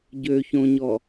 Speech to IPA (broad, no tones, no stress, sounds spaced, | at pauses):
ɟ ø ç õ ɲ ɔ